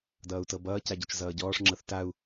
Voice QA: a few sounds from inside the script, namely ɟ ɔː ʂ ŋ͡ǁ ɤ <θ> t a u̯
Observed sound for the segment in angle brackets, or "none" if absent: θ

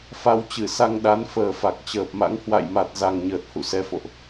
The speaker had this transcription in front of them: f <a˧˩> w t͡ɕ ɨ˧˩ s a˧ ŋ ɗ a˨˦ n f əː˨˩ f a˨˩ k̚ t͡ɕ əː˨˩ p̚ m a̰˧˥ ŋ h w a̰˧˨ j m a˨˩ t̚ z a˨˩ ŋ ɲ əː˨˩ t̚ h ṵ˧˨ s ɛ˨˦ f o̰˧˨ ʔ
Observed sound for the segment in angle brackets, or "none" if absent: a˧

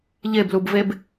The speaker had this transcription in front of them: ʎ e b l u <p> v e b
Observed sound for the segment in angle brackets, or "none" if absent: b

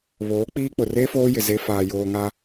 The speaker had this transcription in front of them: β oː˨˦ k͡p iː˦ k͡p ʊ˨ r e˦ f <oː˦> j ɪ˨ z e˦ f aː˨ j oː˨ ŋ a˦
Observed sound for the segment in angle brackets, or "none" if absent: oː˦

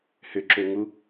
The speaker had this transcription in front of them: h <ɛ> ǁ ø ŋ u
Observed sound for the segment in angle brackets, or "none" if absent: ʏ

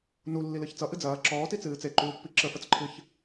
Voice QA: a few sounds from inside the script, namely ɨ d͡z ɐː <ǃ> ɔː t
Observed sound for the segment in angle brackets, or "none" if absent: ǁ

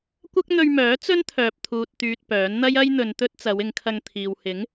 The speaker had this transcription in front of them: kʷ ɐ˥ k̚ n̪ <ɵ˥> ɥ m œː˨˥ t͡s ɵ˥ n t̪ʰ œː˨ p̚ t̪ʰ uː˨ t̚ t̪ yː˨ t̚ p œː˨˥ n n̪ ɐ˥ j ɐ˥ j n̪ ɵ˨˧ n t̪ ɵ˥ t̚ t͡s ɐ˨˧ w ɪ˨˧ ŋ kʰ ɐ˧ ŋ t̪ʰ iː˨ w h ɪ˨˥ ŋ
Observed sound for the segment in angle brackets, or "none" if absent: ɵ˧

